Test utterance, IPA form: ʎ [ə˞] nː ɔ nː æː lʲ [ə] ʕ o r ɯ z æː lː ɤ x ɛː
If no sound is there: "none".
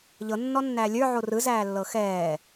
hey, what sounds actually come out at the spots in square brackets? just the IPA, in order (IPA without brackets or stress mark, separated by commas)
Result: ɤ, ə˞